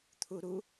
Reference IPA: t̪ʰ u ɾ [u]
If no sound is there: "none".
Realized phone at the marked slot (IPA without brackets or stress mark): u